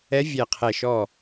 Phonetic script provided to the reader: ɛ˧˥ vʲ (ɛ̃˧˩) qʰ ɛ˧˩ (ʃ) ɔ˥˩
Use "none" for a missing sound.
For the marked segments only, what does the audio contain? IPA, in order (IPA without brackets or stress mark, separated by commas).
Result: ɛ˧˩, ʃ